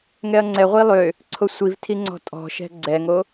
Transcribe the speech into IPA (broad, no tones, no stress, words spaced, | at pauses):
ŋɛɐ̯ŋ͡ǀɛʁʷi lˠø | ǀʰosʷivtʰi ŋ͡ǀɔ̤tʼɔ̤ʃɛ̤ ɡ͡ǀɛŋo